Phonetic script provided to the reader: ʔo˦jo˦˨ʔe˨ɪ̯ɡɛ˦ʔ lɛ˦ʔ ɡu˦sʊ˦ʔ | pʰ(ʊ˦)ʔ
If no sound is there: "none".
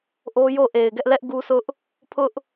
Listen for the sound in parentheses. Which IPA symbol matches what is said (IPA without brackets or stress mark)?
ʊ˦